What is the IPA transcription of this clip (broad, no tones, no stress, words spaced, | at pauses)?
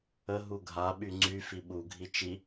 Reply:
ə ɦuɡʱa ɓyŋ͡ǀy fiɓu ɡʱit͡ʃi